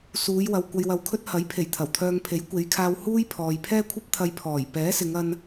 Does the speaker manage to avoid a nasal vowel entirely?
yes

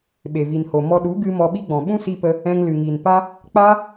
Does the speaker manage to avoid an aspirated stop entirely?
yes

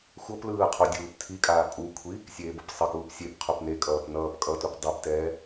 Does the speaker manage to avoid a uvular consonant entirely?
no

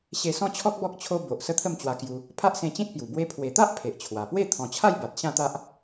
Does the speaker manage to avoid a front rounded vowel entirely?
yes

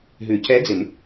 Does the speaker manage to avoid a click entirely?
yes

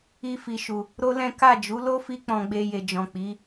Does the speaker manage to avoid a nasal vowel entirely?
no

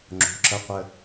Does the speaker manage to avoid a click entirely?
no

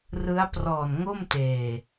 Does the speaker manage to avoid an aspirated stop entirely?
yes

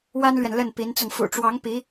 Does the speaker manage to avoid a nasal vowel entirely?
yes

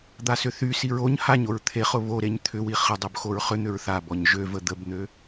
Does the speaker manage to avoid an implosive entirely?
yes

